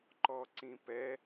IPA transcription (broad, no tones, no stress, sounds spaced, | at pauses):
ǃ ɔ ǀ ĩ p ɛ